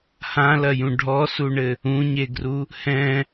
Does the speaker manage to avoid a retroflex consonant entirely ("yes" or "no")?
no